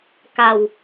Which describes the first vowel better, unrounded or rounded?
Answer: unrounded